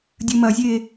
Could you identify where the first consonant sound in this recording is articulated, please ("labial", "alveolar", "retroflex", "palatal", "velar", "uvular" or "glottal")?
alveolar